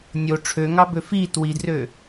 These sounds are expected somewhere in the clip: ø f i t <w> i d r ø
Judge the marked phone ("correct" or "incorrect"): correct